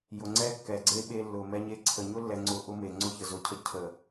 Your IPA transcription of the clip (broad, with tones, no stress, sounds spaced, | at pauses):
j ʊ˨ ŋ͡ǀ ɛ˦ kː ɛ˨ ɡ͡ǀ e˦ ɓ e˦ lː ʊ˨ m ɛ˦ ɲ e˦ ǀʰ ə˨ ɲ ʊ˦ lː ɛ˨ ŋ͡ǀ ʊ˦ ʔ ʊ˦ m e˨ ŋ͡ǀ ʊ˦ ç ə˨ z ʊ˨ cʰ ə˦ cʰ ə˨